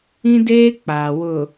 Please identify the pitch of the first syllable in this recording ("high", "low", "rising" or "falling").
high